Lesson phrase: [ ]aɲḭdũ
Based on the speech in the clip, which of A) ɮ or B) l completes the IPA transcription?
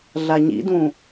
A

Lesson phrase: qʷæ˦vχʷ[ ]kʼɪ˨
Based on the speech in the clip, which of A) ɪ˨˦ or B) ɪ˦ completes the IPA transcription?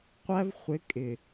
A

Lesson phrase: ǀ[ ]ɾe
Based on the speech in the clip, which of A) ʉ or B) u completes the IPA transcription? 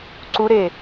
B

